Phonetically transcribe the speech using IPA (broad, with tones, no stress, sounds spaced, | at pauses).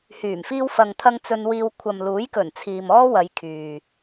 h yː˨˩ m f iː˧ w f ɐ˨ ŋ t̪ʰ ɐ˧ ŋ t͡s ɵ˧ n w iː˧ w kʷʰ ɐ˨ m l uː˨˥ j k ɵ˨˩ n t͡sʰ iː˨ m ɔː˥ w ɐ˨˧ j kʰ yː˨